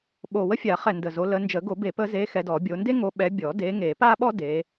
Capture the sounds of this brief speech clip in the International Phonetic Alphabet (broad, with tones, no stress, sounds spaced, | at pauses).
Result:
ɓ o˨˩ w ə˥ fʲ a˨˩˦ χ ɛ˨˩ n d ə˨˩ z o˨˦ l ə˨˦ n d͡ʒ ə˨˩˦ ɡ o˨˩˦ b e˨˩˦ p ə˨˦ z e˨˦ x ɛ˨˦ d ɔ˨˩˦ bʲ o˨˦ n d e˥ ŋ o˨˦ ɓ ɛ˨˦ bʲ ɔ˨˩˦ d e˨˦ ŋ e˨˩˦ p a˥ ɓ ɔ˥ d e˨˦